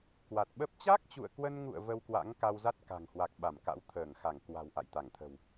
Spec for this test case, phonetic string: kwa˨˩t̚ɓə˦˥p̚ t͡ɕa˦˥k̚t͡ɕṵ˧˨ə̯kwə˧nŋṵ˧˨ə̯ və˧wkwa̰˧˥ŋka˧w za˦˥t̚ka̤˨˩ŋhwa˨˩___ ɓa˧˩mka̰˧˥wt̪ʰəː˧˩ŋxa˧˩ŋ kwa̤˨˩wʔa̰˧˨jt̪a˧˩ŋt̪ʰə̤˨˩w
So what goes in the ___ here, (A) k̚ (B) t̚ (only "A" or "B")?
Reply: A